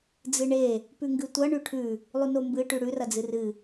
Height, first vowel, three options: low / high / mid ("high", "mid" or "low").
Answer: high